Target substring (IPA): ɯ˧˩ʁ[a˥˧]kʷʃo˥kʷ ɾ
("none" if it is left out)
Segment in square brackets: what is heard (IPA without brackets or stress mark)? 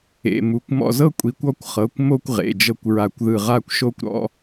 a˥˧